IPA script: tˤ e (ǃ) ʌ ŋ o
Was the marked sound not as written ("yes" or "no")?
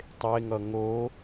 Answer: yes